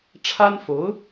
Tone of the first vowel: high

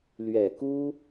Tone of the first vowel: low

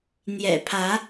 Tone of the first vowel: low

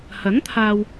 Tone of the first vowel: rising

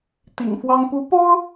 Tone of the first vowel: low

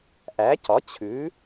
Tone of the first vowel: rising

